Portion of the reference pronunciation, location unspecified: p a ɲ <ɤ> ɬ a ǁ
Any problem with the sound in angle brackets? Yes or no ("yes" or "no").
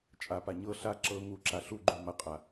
no